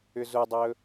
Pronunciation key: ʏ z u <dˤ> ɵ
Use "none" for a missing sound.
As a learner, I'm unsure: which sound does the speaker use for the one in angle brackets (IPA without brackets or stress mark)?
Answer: dˤ